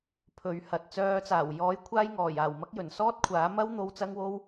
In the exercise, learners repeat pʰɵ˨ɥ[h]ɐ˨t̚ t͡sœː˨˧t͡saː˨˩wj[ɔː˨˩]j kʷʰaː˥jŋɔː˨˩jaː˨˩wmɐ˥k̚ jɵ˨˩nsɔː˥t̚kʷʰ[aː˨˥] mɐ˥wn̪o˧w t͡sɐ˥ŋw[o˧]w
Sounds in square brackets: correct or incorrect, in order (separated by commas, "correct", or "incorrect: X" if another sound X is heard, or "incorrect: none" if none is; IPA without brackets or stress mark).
correct, incorrect: ɔː˨˥, correct, incorrect: o˥